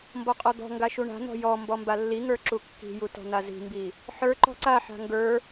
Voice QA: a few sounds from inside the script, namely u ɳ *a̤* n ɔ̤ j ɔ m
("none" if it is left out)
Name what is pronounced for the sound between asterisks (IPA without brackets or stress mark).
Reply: a̤